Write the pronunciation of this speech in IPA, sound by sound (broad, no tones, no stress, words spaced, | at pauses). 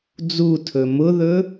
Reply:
d͡zutʰɵ mʊðɵ